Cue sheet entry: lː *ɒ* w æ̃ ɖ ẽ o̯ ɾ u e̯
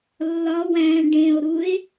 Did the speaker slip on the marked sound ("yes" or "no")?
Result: no